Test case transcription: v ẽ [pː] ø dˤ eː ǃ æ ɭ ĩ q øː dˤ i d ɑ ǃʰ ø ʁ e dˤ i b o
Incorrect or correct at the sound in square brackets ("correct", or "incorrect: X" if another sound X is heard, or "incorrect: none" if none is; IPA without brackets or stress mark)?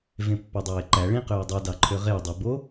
correct